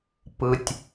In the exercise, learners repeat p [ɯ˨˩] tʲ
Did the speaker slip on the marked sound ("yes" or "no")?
no